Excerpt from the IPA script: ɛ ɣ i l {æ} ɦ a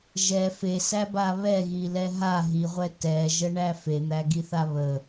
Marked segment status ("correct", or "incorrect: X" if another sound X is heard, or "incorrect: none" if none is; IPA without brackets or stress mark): incorrect: ɛ